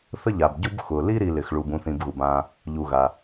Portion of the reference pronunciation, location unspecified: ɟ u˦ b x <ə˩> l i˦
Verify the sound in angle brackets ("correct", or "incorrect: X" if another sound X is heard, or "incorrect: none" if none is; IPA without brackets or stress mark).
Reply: incorrect: ʊ˩